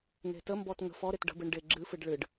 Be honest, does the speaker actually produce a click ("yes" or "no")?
yes